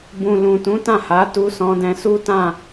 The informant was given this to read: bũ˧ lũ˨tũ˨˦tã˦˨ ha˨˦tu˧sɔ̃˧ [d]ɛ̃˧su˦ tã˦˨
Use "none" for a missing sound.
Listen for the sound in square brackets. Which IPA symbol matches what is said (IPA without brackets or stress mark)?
d